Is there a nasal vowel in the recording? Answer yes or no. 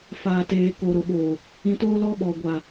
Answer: yes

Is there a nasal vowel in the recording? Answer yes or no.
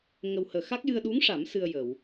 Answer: no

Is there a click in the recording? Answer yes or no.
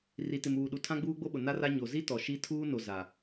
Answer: no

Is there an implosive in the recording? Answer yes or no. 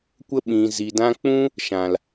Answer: yes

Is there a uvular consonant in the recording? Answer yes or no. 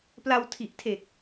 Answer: no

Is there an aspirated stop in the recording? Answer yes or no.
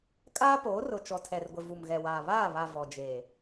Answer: yes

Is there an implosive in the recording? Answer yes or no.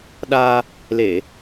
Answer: yes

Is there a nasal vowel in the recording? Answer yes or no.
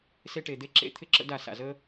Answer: no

